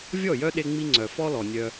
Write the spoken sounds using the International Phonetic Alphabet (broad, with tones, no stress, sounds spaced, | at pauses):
vʲ ɔ˦˨ j œ˦ ɗ e˧ ŋ͡m i˧ ŋ͡ǀ œ˨ f ɔ˦ l ɔ˨ nʲ œ˧